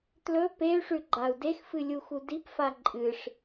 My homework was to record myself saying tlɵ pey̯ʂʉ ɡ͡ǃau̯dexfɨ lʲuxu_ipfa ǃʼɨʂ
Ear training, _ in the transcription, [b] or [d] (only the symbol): d